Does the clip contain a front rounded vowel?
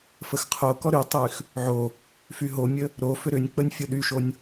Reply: yes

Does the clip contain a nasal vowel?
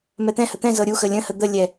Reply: yes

